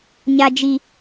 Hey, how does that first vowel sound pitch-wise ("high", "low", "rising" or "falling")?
high